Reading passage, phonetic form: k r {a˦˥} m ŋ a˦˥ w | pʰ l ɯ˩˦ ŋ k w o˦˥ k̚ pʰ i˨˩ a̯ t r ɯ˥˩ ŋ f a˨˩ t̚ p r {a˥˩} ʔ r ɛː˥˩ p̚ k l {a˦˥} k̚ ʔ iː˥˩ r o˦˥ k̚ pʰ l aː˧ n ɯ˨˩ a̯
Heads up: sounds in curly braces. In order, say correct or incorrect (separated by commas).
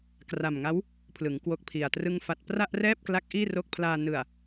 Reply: incorrect, correct, correct